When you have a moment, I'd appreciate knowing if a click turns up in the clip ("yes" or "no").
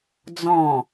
no